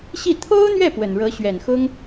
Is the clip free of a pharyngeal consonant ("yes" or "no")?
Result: yes